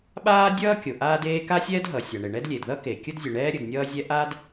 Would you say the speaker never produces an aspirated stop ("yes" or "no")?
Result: yes